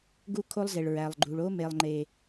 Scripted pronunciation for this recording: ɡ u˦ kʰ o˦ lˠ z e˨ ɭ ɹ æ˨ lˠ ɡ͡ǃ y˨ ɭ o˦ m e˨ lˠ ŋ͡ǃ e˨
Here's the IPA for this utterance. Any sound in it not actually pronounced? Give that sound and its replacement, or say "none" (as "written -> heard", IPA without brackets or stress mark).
y˨ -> u˨